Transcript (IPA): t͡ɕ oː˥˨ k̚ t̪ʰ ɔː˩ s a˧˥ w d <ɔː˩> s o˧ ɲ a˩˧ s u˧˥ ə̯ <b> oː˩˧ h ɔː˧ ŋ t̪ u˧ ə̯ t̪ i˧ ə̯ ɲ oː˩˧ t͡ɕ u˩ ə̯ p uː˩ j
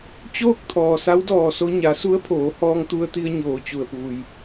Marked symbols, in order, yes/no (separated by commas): no, no